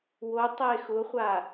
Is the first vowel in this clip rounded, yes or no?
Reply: yes